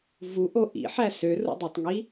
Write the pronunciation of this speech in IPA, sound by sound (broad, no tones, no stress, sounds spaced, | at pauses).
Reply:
v u ʔ o ʔ ḭ ħ æ s ø r ṵ dˤ œ tˤ ŋ i